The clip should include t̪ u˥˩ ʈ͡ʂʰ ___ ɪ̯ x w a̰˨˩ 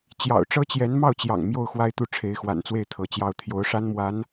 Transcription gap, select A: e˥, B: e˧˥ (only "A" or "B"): B